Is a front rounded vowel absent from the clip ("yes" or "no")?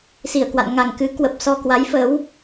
yes